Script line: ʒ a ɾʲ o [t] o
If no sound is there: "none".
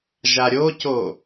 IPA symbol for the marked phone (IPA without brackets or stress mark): c